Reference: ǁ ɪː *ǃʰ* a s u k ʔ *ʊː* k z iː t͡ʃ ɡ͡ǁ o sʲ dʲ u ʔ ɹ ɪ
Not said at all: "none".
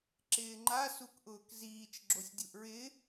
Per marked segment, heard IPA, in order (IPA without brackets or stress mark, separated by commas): ŋ͡ǃ, ʊː